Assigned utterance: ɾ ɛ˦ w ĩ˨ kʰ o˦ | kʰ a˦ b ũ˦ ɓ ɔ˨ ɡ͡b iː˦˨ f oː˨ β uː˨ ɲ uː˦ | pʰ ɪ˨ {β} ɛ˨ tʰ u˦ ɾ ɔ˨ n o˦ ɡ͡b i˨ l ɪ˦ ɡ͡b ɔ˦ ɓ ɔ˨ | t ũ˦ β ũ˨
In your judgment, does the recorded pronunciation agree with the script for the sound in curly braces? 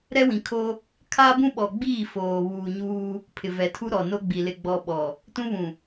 no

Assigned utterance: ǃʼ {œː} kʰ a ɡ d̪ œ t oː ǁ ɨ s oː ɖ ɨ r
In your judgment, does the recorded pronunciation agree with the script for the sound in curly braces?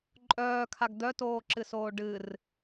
yes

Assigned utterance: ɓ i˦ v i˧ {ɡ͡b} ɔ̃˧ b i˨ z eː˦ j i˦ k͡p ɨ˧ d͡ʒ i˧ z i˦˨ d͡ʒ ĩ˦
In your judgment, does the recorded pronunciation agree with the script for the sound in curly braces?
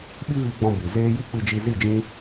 yes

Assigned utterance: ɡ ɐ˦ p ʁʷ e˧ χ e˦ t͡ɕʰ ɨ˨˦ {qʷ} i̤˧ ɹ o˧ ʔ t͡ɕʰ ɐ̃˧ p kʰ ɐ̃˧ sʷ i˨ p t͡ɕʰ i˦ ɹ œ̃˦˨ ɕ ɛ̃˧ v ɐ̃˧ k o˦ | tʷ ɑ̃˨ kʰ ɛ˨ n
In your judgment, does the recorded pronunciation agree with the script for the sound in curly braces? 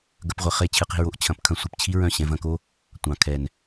no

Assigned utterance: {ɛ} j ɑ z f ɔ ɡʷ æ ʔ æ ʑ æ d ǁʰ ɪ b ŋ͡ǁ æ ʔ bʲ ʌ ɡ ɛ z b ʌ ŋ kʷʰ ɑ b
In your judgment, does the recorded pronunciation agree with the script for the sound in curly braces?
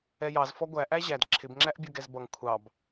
yes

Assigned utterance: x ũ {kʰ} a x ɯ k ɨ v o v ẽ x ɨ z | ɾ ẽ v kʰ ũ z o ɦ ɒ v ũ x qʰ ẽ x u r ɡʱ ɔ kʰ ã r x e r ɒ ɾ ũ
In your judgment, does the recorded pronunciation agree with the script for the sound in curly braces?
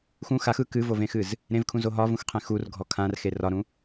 no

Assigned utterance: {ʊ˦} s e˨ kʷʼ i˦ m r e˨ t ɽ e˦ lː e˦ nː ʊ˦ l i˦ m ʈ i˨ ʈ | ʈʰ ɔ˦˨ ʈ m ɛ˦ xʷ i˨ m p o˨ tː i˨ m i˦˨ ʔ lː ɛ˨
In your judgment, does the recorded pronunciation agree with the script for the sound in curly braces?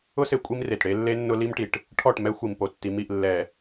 yes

